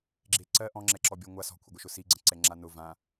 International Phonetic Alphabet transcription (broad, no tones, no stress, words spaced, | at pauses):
ɡ͡ǁeǀɜ ʔɔ̃ŋ͡ǁɛ ǁɔbʲɔŋʷa sɔ̤kʷʰəɡʷəʃʊ siɡ͡ǀə̃ǀɛ ŋ͡ǁanʊ vã